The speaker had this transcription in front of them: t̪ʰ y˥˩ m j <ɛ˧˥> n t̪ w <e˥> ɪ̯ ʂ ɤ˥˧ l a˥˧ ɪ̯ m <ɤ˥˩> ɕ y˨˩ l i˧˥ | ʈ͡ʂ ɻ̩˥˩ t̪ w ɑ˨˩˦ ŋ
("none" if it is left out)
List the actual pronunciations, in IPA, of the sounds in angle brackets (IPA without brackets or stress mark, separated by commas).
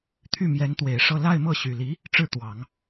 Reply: ɛ˧˥, e˨˩, ɤ˥˩